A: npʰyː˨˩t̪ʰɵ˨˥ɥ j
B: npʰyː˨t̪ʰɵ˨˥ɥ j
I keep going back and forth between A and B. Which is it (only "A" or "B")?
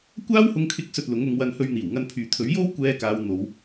B